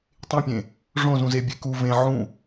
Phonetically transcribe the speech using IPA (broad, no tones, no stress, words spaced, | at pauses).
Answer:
tˤẽpʲẽ | ʐõzũze bʲeku vẽ ʕũ